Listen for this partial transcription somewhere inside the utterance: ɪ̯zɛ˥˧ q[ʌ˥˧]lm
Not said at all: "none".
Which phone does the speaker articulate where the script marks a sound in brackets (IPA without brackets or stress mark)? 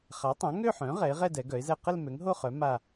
ə˥˧